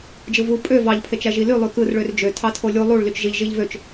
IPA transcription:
d͡ʒ ɯ v u pʼ ø v ɑ ʎ pʰ e t͡ʃ æ ʒ i l y lˠ y k ɯ r ɭ ø r d͡ʒ ø tʰ ɑ tʰ o lʲ u lˠ u ɭ l y t͡ʃ ʒ i ʎ ʒ i ʎ v ø t͡ʃ

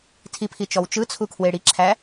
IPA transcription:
tʰ i pʰ i t͡ʃ ɔ w t͡ʃ ɯ t͡sʰ u kʰ w e ɽ i ǁʰ æ

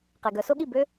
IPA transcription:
q e˨ ɡ œ˨˦ s o˥ ɠ i˥˨ b ø˥

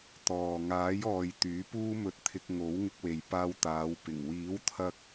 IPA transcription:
t̪ ɔː˨ ŋ aː˨˥ j ɔː˨ j t̪ yː˨˥ p uː˥ m ɵ˧ t̚ t̪ʰ ɪ˧ k̚ ŋ o˨˥ w ŋ ɪ˧ k̚ w e˨ j p aː˧ w t̪ aː˨˧ w p ɪ˨˩ ŋ w iː˨˥ w t̪ʰ ɐ˧ k̚

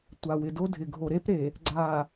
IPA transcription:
tʷ a˨ w ɪ˨ d o˦ dʱ ɪ˨ ɡʱ o˨ ɾ e˦ p ɾ e˨ | ɡ͡ǀ a˨

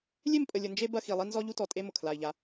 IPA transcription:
lʲ e˦˨ m pʼ ə˨ lʲ ə˨ n d͡ʒ e˦ b ɐ˦ x i˨ lˠ i˦ n z ɔ˦ ʎ u˦ t ɔ˨ tʼ e˦ m ʊ˨ kʰ l a˨ i̯ ʎ a˨˦

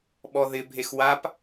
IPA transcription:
ɓ ɔ ð ɪ bʱ e x w a p

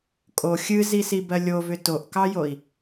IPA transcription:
kʼ o xʲ ɨ z i s i b ɜ lʲ o v ʏ t o ʔ k ɑ j o i̯

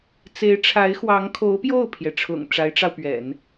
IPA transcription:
t͡s e˧˥ ɪ̯ ʈ͡ʂʰ a˧˥ ɪ̯ x w ɑ˧˥ ŋ kʰ o˧˥ ʊ̯ p j o˥˩ ʊ̯ pʰ j ɛ˩ ʈ͡ʂʰ ʊ̰˨˩ ŋ ʈ͡ʂ a˧˥ ɪ̯ ʈ͡ʂ ɑ˧ ʊ̯ p ɥ ɛ̰˨˩˦ n

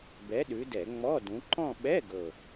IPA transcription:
b ɛ˨˦ ɗ ʉ˨˦ d ɛ˧˩˧ ŋ͡m ɔ˧˥˧ d ũ˨˦ ǃ ɔ̃˦˨ ɓ ɛ˧˥˧ ɡ ɤ˨˩

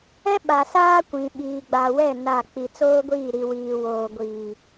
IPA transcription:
ɛ˦ ɓ a˨ s aː˦ kʷ ĩ˨ ɓ iː˨ ɡ͡b a˨ w ɛ˦˨ n a˦˨ k͡p i˨ t͡s oː˦ ɡʷ iː˦˨ ɾ i˨ w iː˨ w oː˨ ɡʷ iː˨

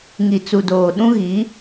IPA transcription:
ŋ i˨ t͡s u˨ d oː˨ ɗ ũ˦ ɣ i˨˦

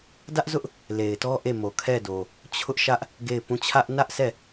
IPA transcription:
d ä˦ ʔ z ʊ˦ ʔ | l e˨ ɪ̯ t ɔ˦ ʔ e˦˨ m o˨ kʰ ɛ˦˨ d o˨ | t͡ɕʰ ʊ˦ ʔ ʃ ä˦ ʔ | ɡ e˦˨ ɪ̯ p ũ˦˨ t͡ɕʰ ä˦ ʔ n ä˦ ʔ sʰ ɛ˦˨

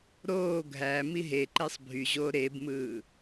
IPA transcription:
ɾ oː ɡʱ æ m i ɦ e ǃ e sˤ bʱ y ʑ oː ɾ e b m ɯː

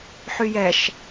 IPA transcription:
ħ y j ɛ ʃ

